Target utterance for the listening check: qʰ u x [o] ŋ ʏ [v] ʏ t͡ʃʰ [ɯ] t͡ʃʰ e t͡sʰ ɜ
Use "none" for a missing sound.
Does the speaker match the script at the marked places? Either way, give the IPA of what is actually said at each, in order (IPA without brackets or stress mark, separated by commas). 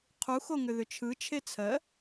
o, ð, ɯ